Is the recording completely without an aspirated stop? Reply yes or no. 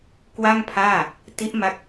no